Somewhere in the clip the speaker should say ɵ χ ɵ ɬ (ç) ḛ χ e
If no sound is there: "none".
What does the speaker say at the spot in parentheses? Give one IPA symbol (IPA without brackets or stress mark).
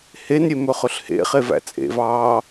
h